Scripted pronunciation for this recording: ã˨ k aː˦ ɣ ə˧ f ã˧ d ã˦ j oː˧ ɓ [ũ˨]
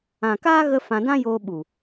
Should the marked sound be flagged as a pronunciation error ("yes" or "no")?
yes